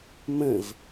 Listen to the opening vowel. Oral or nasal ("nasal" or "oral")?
nasal